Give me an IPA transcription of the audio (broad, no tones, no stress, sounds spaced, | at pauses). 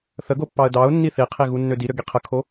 θ ə ɡ o pː ɑ ə̯ d ɑ ʊ̯ nː i θ i qʰ i ɣ u nː ø d i ɾ ø ɡ i qʰ ə kʰ o